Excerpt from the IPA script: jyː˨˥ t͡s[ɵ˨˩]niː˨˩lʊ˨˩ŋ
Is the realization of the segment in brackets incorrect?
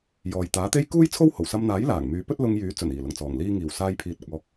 no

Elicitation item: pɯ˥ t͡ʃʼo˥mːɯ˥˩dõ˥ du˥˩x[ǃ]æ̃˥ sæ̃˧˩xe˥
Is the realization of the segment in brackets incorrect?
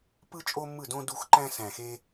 no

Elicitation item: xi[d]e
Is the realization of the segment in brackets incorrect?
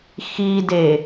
no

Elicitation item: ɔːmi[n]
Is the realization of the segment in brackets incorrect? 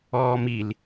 yes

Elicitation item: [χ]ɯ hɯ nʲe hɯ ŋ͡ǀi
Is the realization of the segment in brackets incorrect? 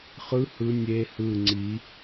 no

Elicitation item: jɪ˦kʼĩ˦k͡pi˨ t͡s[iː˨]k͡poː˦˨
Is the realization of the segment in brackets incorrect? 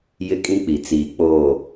no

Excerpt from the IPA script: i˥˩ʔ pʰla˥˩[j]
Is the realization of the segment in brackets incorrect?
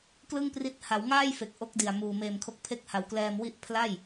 no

